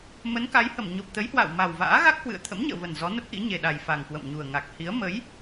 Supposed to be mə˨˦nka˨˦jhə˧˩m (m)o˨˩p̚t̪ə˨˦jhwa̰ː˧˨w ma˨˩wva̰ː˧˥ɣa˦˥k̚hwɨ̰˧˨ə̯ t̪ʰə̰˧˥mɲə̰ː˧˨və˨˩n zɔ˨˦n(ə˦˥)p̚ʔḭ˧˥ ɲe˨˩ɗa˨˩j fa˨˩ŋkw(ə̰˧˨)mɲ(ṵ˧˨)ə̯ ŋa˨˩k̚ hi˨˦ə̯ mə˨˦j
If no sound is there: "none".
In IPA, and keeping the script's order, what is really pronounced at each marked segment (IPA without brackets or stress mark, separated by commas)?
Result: ɲ, ə˦˥, ə̰˧˨, u˨˩